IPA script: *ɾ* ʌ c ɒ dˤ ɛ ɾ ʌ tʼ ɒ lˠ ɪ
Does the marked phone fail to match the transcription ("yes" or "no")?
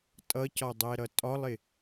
yes